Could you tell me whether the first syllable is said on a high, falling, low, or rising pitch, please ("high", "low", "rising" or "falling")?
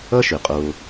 high